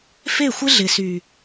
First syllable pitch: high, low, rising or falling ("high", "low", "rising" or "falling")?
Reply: falling